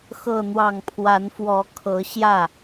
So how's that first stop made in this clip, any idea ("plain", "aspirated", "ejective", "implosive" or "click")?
aspirated